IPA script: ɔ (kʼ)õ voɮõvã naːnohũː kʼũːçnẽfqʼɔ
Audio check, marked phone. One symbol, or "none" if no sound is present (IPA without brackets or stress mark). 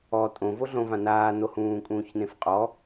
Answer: tʼ